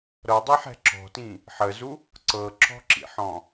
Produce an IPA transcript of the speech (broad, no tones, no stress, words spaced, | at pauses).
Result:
ɾɤdˤeħɛ̤ ǁɔ̤tĩ | ħəzu | ǀɤǁɔ̤ǁḭħɔ̃